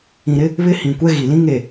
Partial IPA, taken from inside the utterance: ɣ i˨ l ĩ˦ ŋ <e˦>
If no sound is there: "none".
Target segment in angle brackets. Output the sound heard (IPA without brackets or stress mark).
e˨